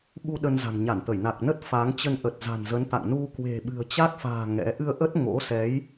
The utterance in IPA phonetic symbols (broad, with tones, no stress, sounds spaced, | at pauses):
ɓ u˧ ɗ ə˧ n z a̤˨˩ ŋ ɲ a˧˩ n t̪ ə˧˩ j n a˨˩ k̚ n ə˦˥ t̚ f a˨˦ ŋ t͡ɕ ə˧ n ʔ ə˨˩ t̚ z a̤˨˩ n z ə˨˦ n t̪ a̰˧˨ ŋ n u˧ k w e̤˨˩ ɓ ɨ̤˨˩ ə̯ t͡ɕ a˦˥ k̚ f a̤ː˨˩ ŋ ɛ̰˧˥ ʔ ɨ˧ ə̯ ʔ ə˦˥ t̚ ŋ o̰˧˥ s ɛ˨˦ j